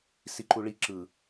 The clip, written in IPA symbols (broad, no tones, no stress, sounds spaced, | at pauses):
s i ǃ u ɭ i ǁ ɯ